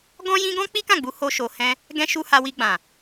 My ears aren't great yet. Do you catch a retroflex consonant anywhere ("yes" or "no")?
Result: no